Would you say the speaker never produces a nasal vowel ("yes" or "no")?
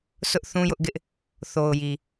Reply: no